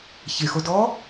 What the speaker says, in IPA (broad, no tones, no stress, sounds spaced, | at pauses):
ç e x o d ɔː